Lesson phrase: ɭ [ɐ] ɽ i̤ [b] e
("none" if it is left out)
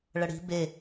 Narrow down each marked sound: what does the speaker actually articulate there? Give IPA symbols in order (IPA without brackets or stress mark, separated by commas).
ɐ, b